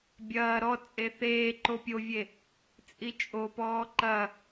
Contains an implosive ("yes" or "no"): no